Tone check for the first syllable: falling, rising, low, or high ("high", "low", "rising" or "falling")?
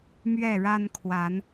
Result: falling